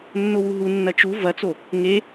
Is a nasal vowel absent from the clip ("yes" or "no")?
yes